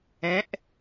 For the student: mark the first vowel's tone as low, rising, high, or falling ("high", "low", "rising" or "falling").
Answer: rising